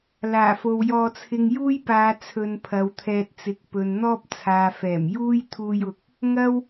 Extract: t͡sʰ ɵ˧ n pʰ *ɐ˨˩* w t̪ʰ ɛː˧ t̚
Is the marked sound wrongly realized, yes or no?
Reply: yes